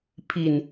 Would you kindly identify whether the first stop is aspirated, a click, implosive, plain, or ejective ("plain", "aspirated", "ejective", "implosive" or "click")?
aspirated